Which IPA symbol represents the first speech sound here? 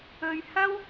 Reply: ɵ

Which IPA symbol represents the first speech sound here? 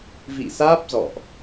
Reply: v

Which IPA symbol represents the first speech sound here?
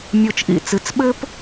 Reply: mʲ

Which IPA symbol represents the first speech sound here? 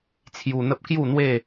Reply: t͡sʰ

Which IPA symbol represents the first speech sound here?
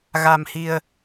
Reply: ɣ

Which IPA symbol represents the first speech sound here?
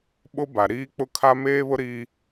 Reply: ɓ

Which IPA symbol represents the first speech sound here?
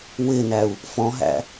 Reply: w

